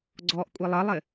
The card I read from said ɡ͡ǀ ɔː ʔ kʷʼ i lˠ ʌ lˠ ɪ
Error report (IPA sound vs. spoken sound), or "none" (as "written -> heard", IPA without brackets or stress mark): none